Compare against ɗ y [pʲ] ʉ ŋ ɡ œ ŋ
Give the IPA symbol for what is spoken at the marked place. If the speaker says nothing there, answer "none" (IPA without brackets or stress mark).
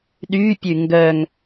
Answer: pʲ